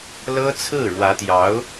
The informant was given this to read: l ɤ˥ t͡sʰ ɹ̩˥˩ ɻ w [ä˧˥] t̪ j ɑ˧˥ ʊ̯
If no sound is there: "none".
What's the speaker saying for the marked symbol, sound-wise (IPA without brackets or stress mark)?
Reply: ä˧˥